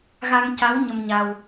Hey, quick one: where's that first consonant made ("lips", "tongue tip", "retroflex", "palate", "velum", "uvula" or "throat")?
velum